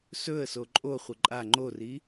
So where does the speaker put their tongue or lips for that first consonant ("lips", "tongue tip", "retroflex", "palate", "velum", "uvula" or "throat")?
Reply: tongue tip